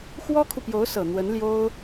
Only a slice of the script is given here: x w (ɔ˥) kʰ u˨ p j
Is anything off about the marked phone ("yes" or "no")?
no